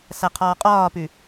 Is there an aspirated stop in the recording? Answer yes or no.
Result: yes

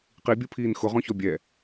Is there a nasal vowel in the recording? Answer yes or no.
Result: yes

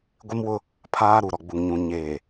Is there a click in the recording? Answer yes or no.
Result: no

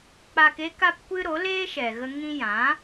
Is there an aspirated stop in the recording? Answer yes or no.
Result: no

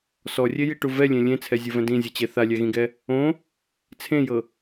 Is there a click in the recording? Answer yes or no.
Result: no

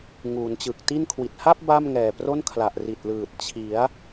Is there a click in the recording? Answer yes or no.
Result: no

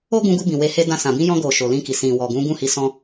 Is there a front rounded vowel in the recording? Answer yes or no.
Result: no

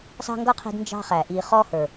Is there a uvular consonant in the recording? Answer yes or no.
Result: yes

